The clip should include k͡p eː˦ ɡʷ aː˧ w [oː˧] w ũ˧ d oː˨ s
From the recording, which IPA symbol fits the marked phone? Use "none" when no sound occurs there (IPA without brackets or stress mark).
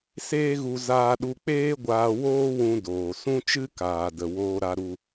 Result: oː˦